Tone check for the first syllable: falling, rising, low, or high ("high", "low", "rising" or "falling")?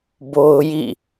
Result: high